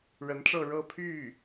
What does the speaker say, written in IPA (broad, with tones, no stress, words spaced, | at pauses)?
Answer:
ɻə˧˥nʈ͡ʂɤ˥˧ ɻɤ˥˧pʰy˥˩